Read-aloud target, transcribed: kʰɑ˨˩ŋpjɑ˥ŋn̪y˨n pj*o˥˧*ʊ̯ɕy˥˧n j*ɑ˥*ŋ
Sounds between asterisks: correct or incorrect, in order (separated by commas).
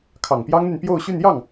correct, incorrect